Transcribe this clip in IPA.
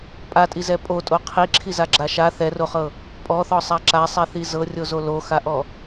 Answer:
pʼ a tʼ i z ɛ pʼ o tʼ o qʰ i ǁʰ i z a ɡ͡ǁ a ʃ a θ ɛ r o χ ɤ | pʼ ɔ θ ɔ sˤ a ǁ a sˤ ɛ θ i z ɤ rʲ o z o l o x a ʔ ɔ

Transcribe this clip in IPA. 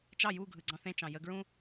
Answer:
t͡ʃ ɑ j u ɡʱ ɯ ɡ͡ǀ ɑ̃ θ ẽ t͡ʃ ɑ̃ j ə ɡ ɹ ũ

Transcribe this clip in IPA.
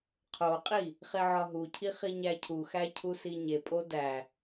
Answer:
qʰ o qʼ i | χ e ʕ ɒ ɦ u cʰ i χ i ɲ æ cʰ u x æ cʰ u s i ɲ e pʼ o d æ

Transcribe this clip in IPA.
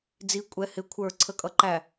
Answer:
d͡z i kʷʼ ɛ h ɪ kʷʰ ə˞ ǀʰ ə kʼ ʌ ǃ æ

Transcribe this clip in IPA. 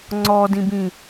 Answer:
ŋ͡ǀ ɔ d ĩ b ĩ

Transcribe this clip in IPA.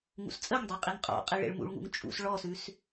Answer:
ŋ ṵ s t͡sʼ ə ŋ dˤ e qʼ i ŋ qʼ ɔ̰ qʼ i ɭ ḛ ɭ m ṵ ɭ ŋ ṵ ŋ t͡ʃʼ ṵ s ɭ ɔ s ʉ s

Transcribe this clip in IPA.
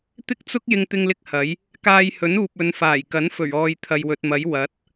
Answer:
t̪ ɪ˥ k̚ t͡s ʊ˥ k̚ j ɪ˥ ŋ t̪ ɪ˥ ŋ l ɪ˥ k̚ h ɐ˨˥ j | k aː˧ j h ɵ˨˥ n uː˨ p̚ ɵ˨˧ n f aː˨˩ j k ɐ˨˥ n f ɵ˨˩ ɥ ɔː˨ j t̪ʰ ɐ˨ j w ɵ˨ t̚ m ɐ˨˥ j w ɐ˨˥ t̚

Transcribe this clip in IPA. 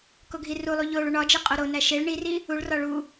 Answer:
k o ɡʱ i r u lˠ u ʎ o ɭ u ɳ ɒ d͡ʒ e qʼ o ɾ o n æ ʃ e ɭ ɳ i r i | u ɭ r ɒ ɭ u

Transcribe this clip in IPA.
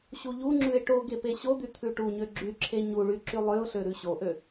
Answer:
ɕ u ʎ u ŋ͡ǁ ʉ ɪ̯ ʈ o ɡ e p e ɕ o d̪ y t̪ʰ ʉ ʈ u ɲ ø ɡ͡ǁ y ǁʰ e ɲ u ɭ y ǁ y lˠ ø ʊ̯ ɬ ø ɾ ʉ ɕ o ʔ ø

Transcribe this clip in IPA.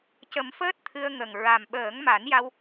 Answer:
c ə˨˩˦ m f əː˦˥ t̚ t̪ʰ ɨ˧ ə̯ ŋ ə˨˩ ŋ ɹ a˨˩ m ɓ əː˨˩˦ ŋ m a˨˩˦ n j a˧ w

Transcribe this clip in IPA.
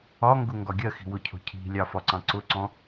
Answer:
ɒ ŋ ɡ ʊ ŋ ɡ ɒ ɡʲ ɜ x i̤ w ʊ cʰ ɔ̤ cʰ i̤ lʲ ɑ f ɒ ǀ ɑ̃ ǀ ʊ ǀ ɔ̃

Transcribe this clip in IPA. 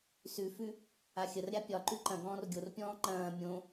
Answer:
s ʉ f ʉ | a xʲ ə r ɾʲ a pʲ ɒ ǃ ʉ ǃ ɐ̃ ɡ ɔ̃ː r ɡʲ o r pʲ ɔ̃ː ŋ͡ǃ ɐ̃ː mʲ õ

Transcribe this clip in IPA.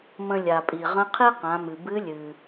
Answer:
m ə̃˧ lʲ a˩ pʼ i˩ ʁ ə̃˧˥ qʰ i˥ q ã˩˧ m ɨ˩ b ɨ˧˥ lʲ ɨ˩

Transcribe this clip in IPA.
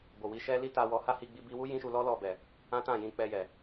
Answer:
b o˨ w i˧ ʃ ɛ˦ l i˦ t a˧ w ɔ˧ h a˦ h i˧ ɡ͡b i˧ b i˧ w u˦ j ĩ˦ ʃ u˧ l ɔ˦ l ɔ˦˨ b ɛ˨ | ã˦ t ã˦˨ j ĩ˧ k͡p ɛ˧ j ɛ˨

